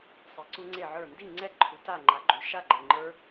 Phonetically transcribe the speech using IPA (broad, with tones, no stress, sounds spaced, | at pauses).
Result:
sˤ i˩˥ ǀ u˦˥ ŋ͡ǀ e˥˨ ʕ ə˞˥˨ n d i˥˨ ŋ͡ǀ ɛ˥˨ ǃʰ u˩˥ t a˥˨ ŋ͡ǃ a˩˥ ɡ͡ǃ u˨ ʃ a˥˨ ɡ͡ǃ e˨ ŋ͡ǃ ə˞˦˥